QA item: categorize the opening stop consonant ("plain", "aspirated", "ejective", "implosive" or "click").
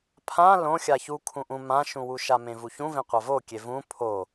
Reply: aspirated